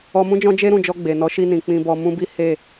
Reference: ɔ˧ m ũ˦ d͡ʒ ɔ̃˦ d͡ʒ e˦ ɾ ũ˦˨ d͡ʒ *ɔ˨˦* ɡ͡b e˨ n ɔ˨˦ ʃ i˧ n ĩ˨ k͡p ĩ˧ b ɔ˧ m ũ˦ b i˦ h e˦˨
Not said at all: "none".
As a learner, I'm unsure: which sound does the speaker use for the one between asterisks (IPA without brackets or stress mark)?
ɔ˧